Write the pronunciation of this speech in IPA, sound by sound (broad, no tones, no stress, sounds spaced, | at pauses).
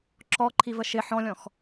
ǁ ɔ ǃʰ i v ə ʃ ɪ ħ ɔ̃ lʲ ɔ̃ x